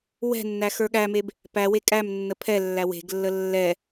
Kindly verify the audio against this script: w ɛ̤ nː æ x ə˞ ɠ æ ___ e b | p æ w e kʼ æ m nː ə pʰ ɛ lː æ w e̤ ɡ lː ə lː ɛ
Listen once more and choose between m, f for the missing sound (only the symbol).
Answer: m